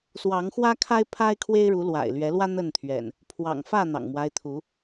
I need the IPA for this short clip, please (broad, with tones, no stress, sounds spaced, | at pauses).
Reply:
s w ɑ˨˦ ŋ x w ä˦ kʰ a˦ ɪ̯ pʰ a˦ ɪ̯ kʰ w e˦ ɪ̯ ɻ u˨˦ l w a̰˨˩ ɪ̯ l ɥ ɛ˨˦ l w ä˦ n̪ ə˥˨ n t̪ʰ ɥ ɛ̰˨˩ n | pʰ w ɑ̰˨˩ ŋ f ä˥˨ n̪ ɑ̰˨˩ ŋ m w a˦ ɪ̯ t̪ʰ u˨˦